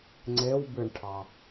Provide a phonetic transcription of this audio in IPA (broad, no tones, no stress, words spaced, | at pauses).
ŋ͡ǀewbɨɳʈʰɑ